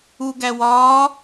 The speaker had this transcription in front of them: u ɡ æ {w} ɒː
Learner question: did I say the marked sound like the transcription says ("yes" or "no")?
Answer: yes